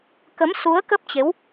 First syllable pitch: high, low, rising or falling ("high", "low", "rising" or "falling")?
rising